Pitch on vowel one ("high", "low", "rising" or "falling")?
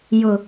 low